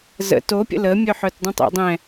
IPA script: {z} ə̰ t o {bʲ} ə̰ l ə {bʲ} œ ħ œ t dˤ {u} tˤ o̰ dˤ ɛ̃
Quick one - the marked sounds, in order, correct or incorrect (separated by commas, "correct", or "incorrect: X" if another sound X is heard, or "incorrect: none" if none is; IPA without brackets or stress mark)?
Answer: correct, incorrect: pʲ, incorrect: mʲ, incorrect: ũ